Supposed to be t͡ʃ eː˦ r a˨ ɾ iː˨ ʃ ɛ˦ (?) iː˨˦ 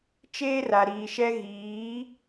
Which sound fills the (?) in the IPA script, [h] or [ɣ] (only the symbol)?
ɣ